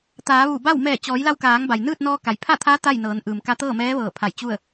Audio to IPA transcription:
t̪ aː˩˧ ʋ u˧˩ b a˥˨ w m ɛː˧˩ t͡ɕ ɔː˩˧ j l a˧ w k aː˩˧ ŋ b a˩ j n ɯː˥˨ t̚ n ɔː˧ k a˩ j pʰ a˥˨ t̪ʰ aː˧˥ t̪ a˥˨ j n ɤː˩˧ n ʔ ɯː˩ m k a˧ t̪ ɤː˥˨ m ɛː˧˥ ʋ ɤː˧˩ pʰ a˧˩ j t͡ɕ u˥˨ ə̯

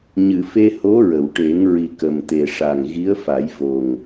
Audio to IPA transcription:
ɲ ɨ˨˩˨ f e˧ h o˧˥ ɹ ə˨˩˨ w ʈ e˨˩˦ ŋ ɹ i˨˩ k ə˨˩ m t̪ e˨˩ ʂ a˨˩ ŋ ɣ i˧˥ ə̯ f a˨˩˦ j v o˨˩ ŋ

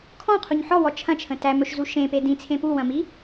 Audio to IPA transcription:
kʰ ɔ̃ qʰ u ɲ ħ ɔ w ɔ t͡ʃʰ ɐ̃ t͡ʃʰ ə̃ t æ m ɵ ʃ z u ʃ ẽ p e d ĩ t͡sʰ ẽ p u w ɐ̃ m i

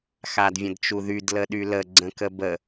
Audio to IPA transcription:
x a d vʲ ə̃ d t͡ʃ u ð y d l ə ɗ y l ə ɡ͡ǀ ə̃ k ə b ə

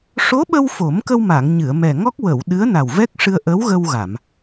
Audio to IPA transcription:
ʂ o˧˥ ɓ ə˧ w f o˨˩˦ m k ə˧ w m a˨˩˨ ŋ ɲ ɨ˨˩˨ ə̯ m ɛ˨˩ ŋ ɔ˦˥ k̚ w ə˨˩˨ w ɗ ɨ˧˥ ə̯ n a˨˩ w v ɛ˦˥ k̚ ʂ ɨ˧ ə̯ ʔ ə˧˥ w ɣ ə˧ w ɣ a˨˩˨ m

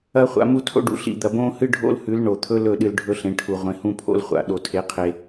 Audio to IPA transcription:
ɐ˦ χʷ a̰˧ m u˦ tʰ o̰˦ ɖ ṵ˨ ɬ ḭ˨ d̪ ɐ˨ b õː˦ h ɨ˦ ɖʱ o̰˦ l h ʉ˨˦ l ɳ o˨ t̪ʰ ɵ˦ l ɵ˦˨ ɗ ɨ˧ l ɖʱ ɵ˦ ɬ ẽ˨˦ ʈʰ u˧ ʁʷ ẽ˧ h ũ˧ pʰ o̰˧ l χʷ a̰˨ ɗ o˦ tʰ e˦ qʰ e˦

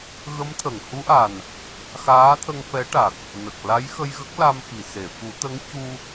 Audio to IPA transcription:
ɣ ə˧˥ m t̪ʰ ə˨˩˨ ŋ h u˧˥ ʔ a˨˩ n | x aː˧˥ t̪ʰ ə˧ ŋ f ɛ˧˥ ʈ a˨˩ k̚ | n ə˨˩ k̚ l a˧˥ j x ə˧ j ɣ ə˦˥ k̚ l a˧ m x i˨˩˨ s e˨˩˨ f u˨˩˦ t̪ ə˧˥ ŋ c u˧

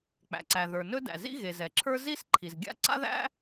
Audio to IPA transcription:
k͡p æ̰˩ ǀ æ˩ ð ə˞˩ n ɵ˥ d æ̰˩ z ḭ˥ ɣ e˩ z ɛ˩ ǁʰ ə˞˥ z i˥ s ǃʰ i˩ z ɡʲ a̰˥ ǀ a̰˥ ð æ̰˥

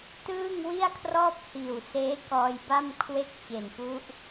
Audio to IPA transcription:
t ɯː˥˩ ŋ w i˥˩ a̯ kʰ r ɔː˥˩ p̚ h iː˨˩ w s eː˦˥ k ɔː˧ j b a˥˩ m kʰ w e˥˩ k̚ t͡ɕ e˨˩ n p u˦˥ ʔ

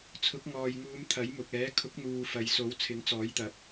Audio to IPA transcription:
t͡sʰ ʊ˨˥ k̚ ŋ ɔː˨ j ŋ uː˨˧ m t̪ʰ ɐ˨˥ j m ʊ˨ k̚ ɛː˨˥ kʰ ʊ˨˥ k̚ n̪ uː˨ f ɐ˨ j s o˨˥ w t͡sʰ ɪ˨˥ ŋ t͡s ɔː˨˥ j t̪ ɐ˨˥ p̚

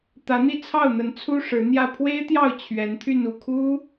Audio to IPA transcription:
t̪ ä˧˥ n̪ i˥˧ t͡sʰ ɑ˥˩ ʊ̯ n̪ ə˧˥ n t͡sʰ u˥ ʂ ɻ̩˧˥ n̪ j ä˥˩ pʰ w e˥ ɪ̯ t̪ j ɑ˥˩ ʊ̯ t͡ɕʰ ɥ ɛ˧˥ n t̪ʰ y˥˧ n u˥˩ kʰ u˥

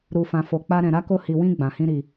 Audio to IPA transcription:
ɾ u˨ f ã˨ f o˨ k͡p a˧ ɾ ɛ̃˨ ɾ a˨˦ k o˧ h i˨ w ĩ˧ ɡ͡b ã˨ h ĩ˧ ɾ i˨

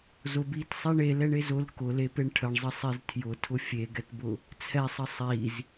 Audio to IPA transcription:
z ʊ b i t sˤ ɛ ɳ e l ɛ ɳ e z ʊ l k ʊ l e p e ɳ ʈʰ ə ɳ zˤ ə sˤ e z tʰ j ʊ tʰ ʊ fʲ e ɡ ɛ t b ʊ | t͡sʰ ɛ sˤ ə sˤ i z

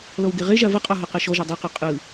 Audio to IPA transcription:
l ɔ w ɡ e ʁ e ʒ a v ə qʼ ɔ ɦ ɔ q ɛ ʃ ɔ ʒ a dˤ e q ɔ qʼ ɯ

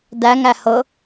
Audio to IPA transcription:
d æ ŋ æ h ɤ

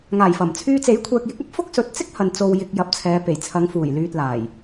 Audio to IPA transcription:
ŋ aː˨˩ j f ɐ˨˩ m t͡sʰ yː˧ t͡s e˨˥ j kʷʰ ɛː˨ k̚ j ɪ˨˥ k̚ ɐ˥ p̚ f ʊ˥ k̚ s ɵ˨ t̚ t͡s ɪ˥ k̚ h ɐ˨ n t͡s o˨ w j ɪ˨ k̚ j ɐ˨ p̚ t͡sʰ ɛː˨˧ p e˨˩ j t͡sʰ ɐ˨˧ ŋ f uː˨˩ j l yː˨ t̚ l aː˨˩ j

